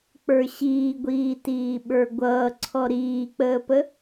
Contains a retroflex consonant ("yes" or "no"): no